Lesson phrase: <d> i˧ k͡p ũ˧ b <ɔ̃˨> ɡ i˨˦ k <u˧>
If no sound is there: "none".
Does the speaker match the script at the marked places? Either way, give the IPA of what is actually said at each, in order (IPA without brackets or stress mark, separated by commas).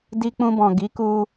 d, ɔ̃˨, u˧